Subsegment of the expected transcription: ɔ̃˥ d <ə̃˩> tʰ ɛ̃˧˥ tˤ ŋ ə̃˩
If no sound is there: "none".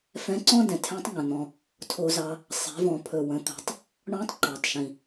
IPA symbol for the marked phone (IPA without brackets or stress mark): ɛ̃˩